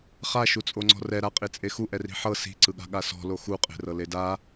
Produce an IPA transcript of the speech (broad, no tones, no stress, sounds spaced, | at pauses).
χ a ʃ u t͡sʼ o ŋ͡ǀ ɔ̤ r ɛ ɾ a qʼ i t͡sʼ e x u ʔ ɛ r i̤ ħ ɤ s i̤ ǀ ɯ ɠ a̤ ɠ a s ɔ̤ l o x u qʼ e̤ r ɤ l e d a